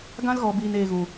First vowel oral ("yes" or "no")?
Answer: no